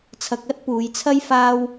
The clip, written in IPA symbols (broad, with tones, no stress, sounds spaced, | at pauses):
t͡sʰ ɐ˧ k̚ ɐ˥ t̚ p uː˨˧ j t͡sʰ ɐ˥ j f aː˥ w